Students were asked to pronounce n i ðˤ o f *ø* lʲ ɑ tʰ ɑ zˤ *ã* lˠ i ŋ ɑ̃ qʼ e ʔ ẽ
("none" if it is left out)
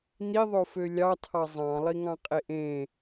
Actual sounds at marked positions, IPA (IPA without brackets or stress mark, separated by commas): ø, ɑ̃